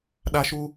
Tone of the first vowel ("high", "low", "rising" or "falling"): high